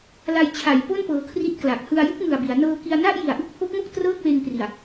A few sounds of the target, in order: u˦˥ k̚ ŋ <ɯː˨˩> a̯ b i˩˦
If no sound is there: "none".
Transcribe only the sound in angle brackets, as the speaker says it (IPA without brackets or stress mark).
ɯ˨˩